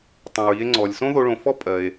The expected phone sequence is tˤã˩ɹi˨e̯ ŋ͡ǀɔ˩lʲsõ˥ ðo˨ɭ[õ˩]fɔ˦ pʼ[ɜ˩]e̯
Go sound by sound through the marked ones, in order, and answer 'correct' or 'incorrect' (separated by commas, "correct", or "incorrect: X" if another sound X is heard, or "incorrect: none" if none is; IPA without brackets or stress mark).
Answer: correct, correct